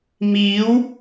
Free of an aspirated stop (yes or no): yes